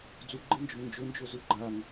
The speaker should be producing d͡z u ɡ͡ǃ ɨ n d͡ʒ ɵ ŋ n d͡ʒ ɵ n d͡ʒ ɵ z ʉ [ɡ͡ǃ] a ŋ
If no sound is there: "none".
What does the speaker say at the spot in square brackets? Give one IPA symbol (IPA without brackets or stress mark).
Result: ɡ͡ǃ